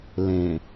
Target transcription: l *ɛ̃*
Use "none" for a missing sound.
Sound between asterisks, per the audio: ẽ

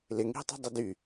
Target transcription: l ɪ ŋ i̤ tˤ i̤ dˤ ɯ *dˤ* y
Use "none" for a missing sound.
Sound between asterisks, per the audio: d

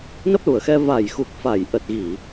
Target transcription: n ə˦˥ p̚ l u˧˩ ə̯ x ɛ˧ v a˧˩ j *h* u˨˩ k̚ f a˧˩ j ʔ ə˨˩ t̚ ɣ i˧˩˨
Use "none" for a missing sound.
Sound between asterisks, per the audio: x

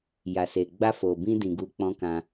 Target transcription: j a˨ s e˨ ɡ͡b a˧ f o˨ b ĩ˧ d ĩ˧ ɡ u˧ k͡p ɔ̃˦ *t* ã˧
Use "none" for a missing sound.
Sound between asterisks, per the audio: k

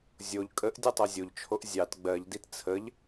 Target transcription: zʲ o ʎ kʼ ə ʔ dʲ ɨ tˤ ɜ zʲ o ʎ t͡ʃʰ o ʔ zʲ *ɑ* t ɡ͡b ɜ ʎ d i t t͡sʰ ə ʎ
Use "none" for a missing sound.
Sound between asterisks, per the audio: ɑ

